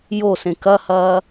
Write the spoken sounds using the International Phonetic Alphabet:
josẽ kɐhɐː

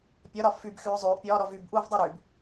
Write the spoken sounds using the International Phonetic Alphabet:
pʲɒɾɒ fybxyː zˤyːʔpʲɒːɾɔ vybʔuːvdˤu ɾyb

